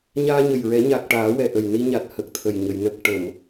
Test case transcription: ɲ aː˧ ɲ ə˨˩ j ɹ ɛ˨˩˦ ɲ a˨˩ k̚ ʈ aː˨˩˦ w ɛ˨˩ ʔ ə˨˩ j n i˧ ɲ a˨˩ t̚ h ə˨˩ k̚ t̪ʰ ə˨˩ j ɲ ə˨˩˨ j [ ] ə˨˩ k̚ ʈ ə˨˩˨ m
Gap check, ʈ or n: n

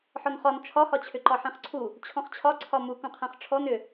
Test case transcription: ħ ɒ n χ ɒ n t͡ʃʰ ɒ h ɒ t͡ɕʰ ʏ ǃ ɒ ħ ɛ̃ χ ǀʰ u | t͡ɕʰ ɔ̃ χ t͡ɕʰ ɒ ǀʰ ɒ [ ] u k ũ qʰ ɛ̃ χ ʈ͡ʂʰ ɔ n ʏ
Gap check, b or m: m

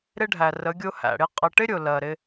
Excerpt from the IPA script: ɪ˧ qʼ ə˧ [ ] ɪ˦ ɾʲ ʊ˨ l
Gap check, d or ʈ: ʈ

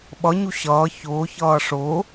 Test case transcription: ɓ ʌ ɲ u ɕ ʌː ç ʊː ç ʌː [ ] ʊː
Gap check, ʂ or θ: ʂ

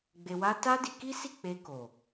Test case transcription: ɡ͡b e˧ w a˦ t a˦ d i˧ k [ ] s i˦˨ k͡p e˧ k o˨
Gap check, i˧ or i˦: i˦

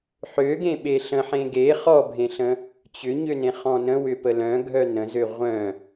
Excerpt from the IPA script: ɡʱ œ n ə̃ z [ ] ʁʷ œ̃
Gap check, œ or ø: ø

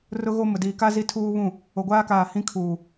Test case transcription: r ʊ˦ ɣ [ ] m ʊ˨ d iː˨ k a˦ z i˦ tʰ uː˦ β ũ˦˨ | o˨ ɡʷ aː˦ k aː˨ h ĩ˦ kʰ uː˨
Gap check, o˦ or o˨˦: o˦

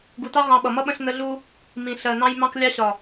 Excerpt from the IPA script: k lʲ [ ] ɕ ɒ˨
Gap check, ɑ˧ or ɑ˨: ɑ˧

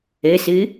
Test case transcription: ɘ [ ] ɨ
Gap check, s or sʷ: s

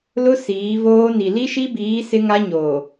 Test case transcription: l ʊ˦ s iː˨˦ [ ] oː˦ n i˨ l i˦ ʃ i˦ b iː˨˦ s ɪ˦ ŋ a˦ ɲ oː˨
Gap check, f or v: v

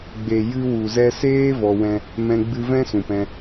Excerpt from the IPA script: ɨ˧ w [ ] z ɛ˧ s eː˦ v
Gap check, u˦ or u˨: u˨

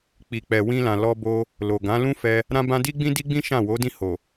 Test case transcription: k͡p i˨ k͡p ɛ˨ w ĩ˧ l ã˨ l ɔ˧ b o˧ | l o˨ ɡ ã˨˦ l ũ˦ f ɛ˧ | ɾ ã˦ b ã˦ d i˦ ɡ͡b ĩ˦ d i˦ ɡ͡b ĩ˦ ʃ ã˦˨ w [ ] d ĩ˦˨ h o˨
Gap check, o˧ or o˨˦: o˨˦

